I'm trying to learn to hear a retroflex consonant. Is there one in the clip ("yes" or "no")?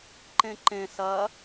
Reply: no